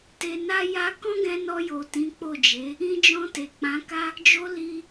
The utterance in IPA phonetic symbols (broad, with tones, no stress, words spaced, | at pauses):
te˧na˦ja˦ kɔ̃˦ɡɛ̃˧nɔ˧jo˨ tĩ˨˦k͡po˦˨d͡ʒe˨˦ | ĩ˧d͡ʒɔ̃˧ te˨k͡pã˨˦ka˦ | d͡ʒo˧ li˧